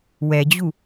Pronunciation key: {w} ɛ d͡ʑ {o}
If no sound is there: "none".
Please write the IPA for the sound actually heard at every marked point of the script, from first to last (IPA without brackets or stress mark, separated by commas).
w, u